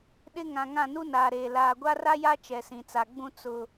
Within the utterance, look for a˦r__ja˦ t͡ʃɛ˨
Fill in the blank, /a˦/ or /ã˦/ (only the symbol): a˦